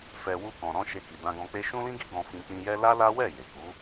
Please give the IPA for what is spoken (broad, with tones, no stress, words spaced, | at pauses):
fɛ˨ wu˧kɔ̃˨ɾɔ̃˧ ʃe˧ki˨ dã˧ɡɔ̃˧k͡pe˦ ʃũ˦lĩ˦ɡi˦ ɡɔ̃˧fĩ˧ k͡pĩ˧jɛ˦ la˦la˦wɛ˦˨ je˨ ku˨˦